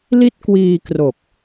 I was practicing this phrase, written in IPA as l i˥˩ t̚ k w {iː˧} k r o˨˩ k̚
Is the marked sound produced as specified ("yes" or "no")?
yes